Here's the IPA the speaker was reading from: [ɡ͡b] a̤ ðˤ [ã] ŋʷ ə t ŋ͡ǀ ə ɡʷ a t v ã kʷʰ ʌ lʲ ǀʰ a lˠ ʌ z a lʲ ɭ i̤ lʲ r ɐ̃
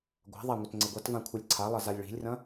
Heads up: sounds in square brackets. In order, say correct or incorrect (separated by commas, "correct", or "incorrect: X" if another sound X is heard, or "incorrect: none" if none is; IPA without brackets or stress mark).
incorrect: ɡʷ, incorrect: a